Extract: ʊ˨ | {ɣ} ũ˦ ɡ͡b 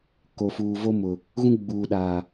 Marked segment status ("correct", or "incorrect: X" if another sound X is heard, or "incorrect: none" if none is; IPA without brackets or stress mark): correct